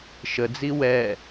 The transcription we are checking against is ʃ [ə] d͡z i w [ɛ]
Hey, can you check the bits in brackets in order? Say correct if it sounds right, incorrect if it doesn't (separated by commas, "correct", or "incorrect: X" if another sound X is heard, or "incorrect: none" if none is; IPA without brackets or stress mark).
correct, correct